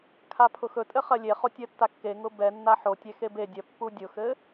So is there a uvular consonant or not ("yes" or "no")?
yes